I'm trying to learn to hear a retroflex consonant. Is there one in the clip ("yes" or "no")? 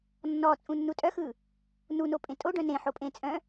yes